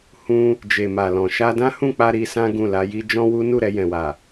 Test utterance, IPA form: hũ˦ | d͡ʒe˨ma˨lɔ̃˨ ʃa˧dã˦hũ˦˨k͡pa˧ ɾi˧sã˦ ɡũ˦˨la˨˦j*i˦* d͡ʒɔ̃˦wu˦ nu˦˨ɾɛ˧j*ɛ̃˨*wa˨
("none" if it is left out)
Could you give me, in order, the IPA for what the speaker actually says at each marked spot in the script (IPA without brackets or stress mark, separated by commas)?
i˦, ɛ̃˨